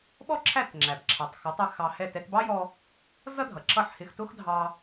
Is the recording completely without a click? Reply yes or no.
no